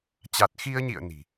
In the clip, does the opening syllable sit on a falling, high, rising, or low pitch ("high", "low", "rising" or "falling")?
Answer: low